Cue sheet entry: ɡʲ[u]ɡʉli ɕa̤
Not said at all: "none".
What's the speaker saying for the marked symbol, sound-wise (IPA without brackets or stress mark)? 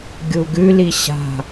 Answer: u